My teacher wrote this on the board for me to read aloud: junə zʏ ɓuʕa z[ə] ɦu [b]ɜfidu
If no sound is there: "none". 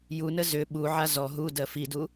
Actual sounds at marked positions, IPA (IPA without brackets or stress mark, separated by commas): ɔ, d